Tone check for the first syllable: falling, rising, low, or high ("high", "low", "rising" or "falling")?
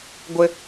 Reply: high